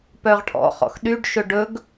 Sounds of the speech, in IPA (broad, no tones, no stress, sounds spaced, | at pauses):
p œ ʁ ʈʰ ɔ̰ χ ɔ̰ x ɗ y ɖ ʃ ɵ ɖ ɵ ɡ